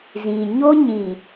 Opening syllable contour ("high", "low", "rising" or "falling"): low